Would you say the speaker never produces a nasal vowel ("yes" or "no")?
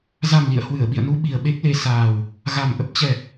yes